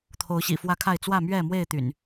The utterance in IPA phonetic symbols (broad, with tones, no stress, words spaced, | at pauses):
t̪ʰo˨˦ʊ̯ɕḭ˨˩fwä˦kʰa˥˨ɪ̯ t͡swä˥˨mɥɛ˥˨mwe˥˨ɪ̯ t̪y̰˨˩n